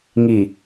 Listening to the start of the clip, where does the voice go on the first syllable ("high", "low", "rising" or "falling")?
low